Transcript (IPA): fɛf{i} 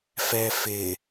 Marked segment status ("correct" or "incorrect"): incorrect